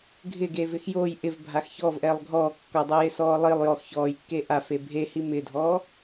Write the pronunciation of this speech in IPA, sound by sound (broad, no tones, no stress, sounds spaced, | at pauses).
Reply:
ɡʱ ɪ ɡ eː v ɪ x j o j ʔ ɪ v bʱ a x ç ɔ v ʔ ɛː lˠ ɡʱ ɔː kː ɔ dˤ e j ɪ s ɔː lˠ i lˠ j ɔ x ç ɔː j kː e ʔ a f e bʱ e h i m ɪ dʱ ɔː